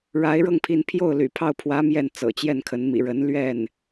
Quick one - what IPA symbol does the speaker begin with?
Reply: ɻ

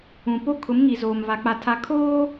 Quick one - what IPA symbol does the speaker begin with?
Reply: ũ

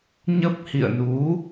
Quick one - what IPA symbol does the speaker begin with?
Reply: ɲ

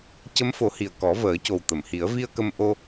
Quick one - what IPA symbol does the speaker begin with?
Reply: c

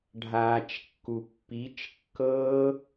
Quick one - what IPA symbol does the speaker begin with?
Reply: ɖʱ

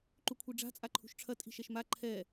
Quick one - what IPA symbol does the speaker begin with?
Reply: ǃ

